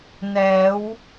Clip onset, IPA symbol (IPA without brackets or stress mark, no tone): n